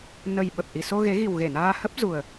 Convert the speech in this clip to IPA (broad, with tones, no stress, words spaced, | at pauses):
nə˨˩j ɓə˨˩p̚ʔi˨˩so˧ ɣe˨˦ɣi˨˩wɣe˧˩naː˧ hə˦˥p̚ zu˨˩ə̯